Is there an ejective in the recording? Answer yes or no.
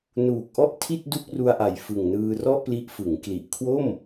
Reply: no